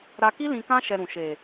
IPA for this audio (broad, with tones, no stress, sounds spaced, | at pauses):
ɾ a˧ k i˦ l ĩ˧ k ã˦ ʃ ɛ˧ ɾ ũ˨ ʃ e˨